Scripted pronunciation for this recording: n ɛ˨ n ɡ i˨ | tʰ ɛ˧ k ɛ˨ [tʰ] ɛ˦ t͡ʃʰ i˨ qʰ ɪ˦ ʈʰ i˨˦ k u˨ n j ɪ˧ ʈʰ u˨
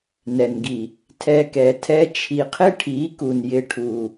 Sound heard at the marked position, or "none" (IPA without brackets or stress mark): tʰ